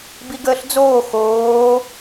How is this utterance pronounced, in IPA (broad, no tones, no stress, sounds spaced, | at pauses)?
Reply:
b i ɡ əː ɬ d͡z oː x oː